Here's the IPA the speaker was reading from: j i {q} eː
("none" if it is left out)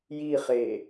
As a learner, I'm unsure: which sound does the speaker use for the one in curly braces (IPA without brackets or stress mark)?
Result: χ